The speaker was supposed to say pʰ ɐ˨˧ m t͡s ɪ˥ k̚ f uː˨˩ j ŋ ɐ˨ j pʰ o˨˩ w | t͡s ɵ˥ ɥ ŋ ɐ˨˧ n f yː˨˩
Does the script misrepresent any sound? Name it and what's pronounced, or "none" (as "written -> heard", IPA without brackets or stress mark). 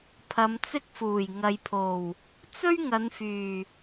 none